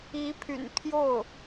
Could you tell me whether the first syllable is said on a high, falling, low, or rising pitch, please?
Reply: rising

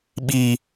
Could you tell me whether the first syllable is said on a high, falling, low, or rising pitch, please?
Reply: high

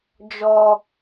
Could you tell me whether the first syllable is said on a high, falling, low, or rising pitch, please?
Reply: high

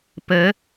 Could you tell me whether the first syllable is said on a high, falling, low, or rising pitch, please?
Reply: rising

